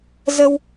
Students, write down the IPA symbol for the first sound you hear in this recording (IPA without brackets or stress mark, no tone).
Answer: z